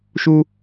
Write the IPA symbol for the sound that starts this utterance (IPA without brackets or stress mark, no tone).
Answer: ʃ